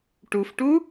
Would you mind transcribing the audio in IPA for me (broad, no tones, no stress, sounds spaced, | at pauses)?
ʈ u f ʈ u